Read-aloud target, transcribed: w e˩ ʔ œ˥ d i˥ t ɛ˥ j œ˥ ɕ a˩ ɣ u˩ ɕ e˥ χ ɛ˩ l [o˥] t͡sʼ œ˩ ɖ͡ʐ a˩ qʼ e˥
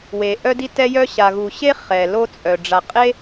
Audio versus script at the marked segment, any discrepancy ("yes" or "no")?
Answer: no